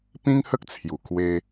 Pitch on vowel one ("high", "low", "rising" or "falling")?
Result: high